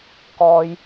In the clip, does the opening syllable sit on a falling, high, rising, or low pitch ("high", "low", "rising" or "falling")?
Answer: high